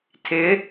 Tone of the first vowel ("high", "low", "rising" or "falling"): rising